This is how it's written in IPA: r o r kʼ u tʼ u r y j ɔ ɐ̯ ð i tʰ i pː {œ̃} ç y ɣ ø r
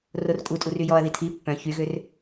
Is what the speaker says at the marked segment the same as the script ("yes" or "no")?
yes